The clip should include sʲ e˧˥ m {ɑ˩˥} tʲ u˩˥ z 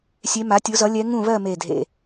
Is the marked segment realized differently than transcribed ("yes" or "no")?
yes